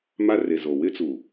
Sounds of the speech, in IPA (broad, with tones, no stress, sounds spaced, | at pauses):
m a˦ r e˨ z o˨ w ɪ˦ t͡s u˨